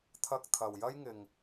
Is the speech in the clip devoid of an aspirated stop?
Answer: no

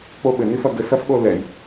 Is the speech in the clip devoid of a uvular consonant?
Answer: yes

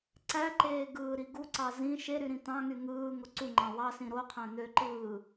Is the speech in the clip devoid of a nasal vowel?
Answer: no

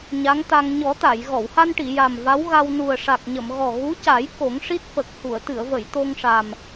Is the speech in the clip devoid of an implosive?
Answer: yes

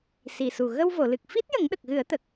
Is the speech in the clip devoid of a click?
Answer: yes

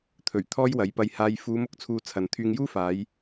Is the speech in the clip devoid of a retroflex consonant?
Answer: yes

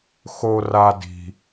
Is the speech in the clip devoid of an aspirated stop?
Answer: yes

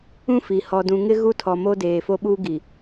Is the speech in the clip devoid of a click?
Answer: yes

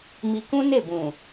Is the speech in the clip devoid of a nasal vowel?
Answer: no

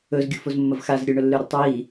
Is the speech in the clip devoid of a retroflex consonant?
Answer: no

